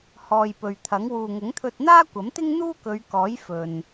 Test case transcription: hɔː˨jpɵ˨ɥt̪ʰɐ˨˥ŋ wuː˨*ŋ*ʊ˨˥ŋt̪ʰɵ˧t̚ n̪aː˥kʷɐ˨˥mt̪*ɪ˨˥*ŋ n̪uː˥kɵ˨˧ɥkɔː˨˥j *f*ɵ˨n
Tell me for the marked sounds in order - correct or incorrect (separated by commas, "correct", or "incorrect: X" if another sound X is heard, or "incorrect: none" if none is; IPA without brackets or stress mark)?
correct, incorrect: ɪ˥, correct